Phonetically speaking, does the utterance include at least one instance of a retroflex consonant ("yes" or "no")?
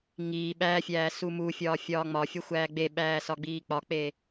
no